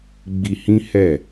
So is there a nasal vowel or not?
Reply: yes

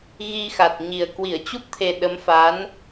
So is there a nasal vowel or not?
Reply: no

